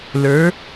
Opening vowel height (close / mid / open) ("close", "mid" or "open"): mid